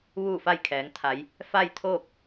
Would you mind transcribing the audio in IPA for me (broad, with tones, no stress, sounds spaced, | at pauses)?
ʋ uː˥˨ f a˥˨ j kʰ ɛː˩˧ ŋ t̪ʰ a˩˧ j | f a˥˨ j t̪ʰ oː˥˨ k̚